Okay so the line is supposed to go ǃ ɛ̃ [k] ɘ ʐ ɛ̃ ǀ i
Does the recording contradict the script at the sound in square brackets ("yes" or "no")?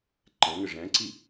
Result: yes